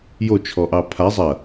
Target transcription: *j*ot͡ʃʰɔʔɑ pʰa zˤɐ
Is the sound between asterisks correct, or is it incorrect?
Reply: correct